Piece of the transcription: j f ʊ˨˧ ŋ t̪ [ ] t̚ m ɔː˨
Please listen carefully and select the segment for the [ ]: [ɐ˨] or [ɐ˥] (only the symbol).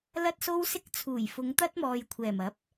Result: ɐ˥